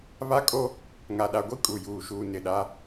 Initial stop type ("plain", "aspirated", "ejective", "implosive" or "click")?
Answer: ejective